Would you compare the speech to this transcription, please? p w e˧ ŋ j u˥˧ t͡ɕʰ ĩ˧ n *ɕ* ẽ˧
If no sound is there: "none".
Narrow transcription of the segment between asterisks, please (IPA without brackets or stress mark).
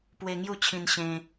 ɕ